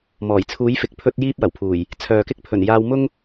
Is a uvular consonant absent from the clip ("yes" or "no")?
yes